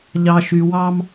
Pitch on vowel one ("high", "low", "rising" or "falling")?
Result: low